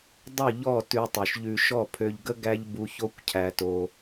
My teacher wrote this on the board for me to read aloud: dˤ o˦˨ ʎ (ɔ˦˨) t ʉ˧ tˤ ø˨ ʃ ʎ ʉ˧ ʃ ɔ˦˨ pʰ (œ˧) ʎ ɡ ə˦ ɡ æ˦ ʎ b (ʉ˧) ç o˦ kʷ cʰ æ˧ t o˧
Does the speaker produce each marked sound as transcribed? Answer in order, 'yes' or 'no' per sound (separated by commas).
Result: yes, no, no